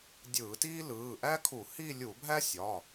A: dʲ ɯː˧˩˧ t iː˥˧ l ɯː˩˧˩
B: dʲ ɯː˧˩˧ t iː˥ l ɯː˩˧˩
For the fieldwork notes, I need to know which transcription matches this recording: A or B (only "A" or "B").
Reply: B